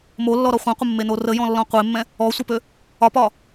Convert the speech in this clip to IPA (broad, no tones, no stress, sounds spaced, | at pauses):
m o lː ɔ ɾ ɔ χʷ ẽ qʷ ə mː e n o r ə j ɔ̃ lː ɔ̃ qʷ e mː ɛ̃ | ɔ sʷ ɛ p ø | ɒ p ɒ